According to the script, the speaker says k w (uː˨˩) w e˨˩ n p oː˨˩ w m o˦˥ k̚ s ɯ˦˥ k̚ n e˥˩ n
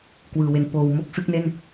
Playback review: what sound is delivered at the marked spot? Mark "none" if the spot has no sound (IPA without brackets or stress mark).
ɯː˨˩